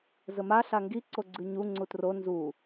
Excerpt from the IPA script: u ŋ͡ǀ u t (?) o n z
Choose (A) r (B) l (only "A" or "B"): A